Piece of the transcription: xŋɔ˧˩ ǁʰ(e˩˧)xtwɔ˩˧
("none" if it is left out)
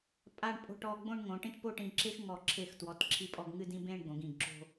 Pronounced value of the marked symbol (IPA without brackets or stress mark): e˧˩